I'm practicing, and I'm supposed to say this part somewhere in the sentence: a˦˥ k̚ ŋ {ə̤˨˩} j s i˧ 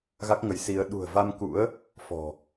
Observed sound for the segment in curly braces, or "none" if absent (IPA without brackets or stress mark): ə˨˦